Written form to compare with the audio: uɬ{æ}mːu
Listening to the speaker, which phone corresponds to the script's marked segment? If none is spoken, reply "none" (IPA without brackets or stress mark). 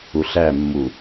æ